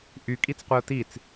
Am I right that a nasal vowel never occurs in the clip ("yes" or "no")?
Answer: yes